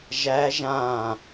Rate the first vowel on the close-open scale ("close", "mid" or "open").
open